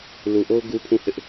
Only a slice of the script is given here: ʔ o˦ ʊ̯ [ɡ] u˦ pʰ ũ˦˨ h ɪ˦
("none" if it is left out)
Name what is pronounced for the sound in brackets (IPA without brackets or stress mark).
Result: ɡ